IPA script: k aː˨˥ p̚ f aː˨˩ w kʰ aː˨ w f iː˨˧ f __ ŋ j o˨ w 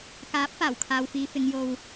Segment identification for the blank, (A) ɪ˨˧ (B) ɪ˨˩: A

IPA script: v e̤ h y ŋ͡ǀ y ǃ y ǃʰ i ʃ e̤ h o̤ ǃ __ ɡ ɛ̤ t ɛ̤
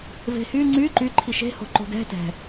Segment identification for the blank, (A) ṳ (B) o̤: B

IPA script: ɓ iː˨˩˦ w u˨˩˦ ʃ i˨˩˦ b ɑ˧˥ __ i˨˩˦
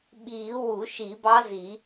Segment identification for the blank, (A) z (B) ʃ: A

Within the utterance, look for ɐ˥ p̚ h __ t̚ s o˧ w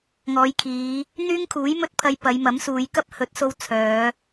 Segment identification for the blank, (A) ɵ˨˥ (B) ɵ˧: A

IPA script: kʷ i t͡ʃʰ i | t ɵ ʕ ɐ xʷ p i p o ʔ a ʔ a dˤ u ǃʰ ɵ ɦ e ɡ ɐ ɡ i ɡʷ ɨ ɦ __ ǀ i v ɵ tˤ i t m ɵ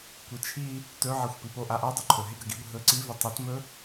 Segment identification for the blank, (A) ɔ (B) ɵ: B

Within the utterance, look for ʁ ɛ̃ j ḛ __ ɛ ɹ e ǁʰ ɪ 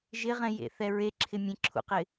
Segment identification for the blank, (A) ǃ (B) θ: B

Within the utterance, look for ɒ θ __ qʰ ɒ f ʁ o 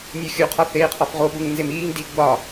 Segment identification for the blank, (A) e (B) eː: B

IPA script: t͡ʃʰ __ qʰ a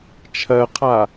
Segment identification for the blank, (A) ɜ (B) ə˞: A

